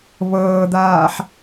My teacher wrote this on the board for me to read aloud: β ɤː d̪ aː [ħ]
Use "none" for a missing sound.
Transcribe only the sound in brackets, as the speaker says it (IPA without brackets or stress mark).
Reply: ħ